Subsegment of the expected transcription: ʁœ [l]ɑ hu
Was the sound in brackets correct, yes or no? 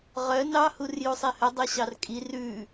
no